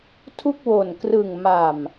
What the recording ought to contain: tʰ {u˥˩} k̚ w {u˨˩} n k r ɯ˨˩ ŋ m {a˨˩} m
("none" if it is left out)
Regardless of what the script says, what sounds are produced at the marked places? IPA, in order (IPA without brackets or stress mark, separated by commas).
u˥˩, o˨˩, a˨˩